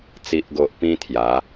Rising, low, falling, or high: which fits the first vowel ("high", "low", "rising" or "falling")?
low